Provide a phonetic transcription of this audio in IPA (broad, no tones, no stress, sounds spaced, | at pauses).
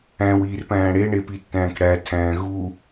æ̃ w iː r p æ̃ː ɽ e ɳ e p i tː æ̃ː k ɽ æ tʰ æ̃ː ɣ u